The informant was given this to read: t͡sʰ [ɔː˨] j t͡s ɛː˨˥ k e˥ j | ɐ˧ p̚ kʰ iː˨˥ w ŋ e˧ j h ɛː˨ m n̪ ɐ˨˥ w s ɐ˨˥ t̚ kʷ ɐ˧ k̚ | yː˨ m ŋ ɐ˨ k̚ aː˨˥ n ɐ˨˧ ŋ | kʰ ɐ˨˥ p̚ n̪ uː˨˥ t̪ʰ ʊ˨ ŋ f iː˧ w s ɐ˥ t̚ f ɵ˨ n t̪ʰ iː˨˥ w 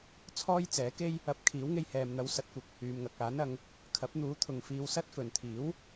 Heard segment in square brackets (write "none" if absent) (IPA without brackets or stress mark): ɔː˥